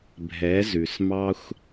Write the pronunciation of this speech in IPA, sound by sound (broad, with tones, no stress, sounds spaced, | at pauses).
bʱ ɛ˨˦ z ʉ˨ s m ɑ˦ xʷ